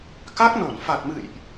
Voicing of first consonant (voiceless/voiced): voiceless